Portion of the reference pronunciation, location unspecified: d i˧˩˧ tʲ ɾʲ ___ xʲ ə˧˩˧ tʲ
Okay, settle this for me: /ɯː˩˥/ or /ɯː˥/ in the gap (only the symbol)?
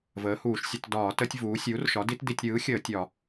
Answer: ɯː˩˥